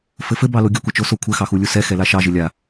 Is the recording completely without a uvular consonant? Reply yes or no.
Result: yes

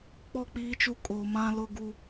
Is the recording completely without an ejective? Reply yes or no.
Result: no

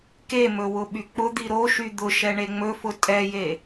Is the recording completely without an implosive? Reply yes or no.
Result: no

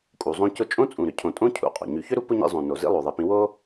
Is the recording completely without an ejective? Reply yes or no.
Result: no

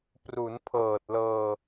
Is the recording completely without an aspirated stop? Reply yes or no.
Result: no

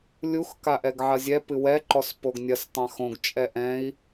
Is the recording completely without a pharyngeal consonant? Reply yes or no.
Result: no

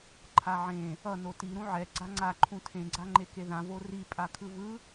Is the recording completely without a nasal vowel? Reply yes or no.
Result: no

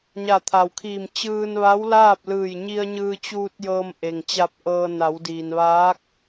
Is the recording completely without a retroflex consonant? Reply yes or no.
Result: yes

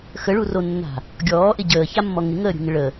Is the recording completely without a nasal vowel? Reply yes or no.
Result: yes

